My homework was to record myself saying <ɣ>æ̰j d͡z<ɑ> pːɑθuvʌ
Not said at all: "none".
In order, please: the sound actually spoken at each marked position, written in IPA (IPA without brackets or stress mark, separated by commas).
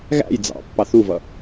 ɣ, ɑ̰